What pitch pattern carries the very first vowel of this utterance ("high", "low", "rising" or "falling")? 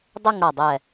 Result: falling